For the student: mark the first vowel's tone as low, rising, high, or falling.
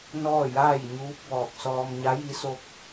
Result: falling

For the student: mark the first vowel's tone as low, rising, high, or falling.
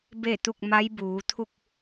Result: falling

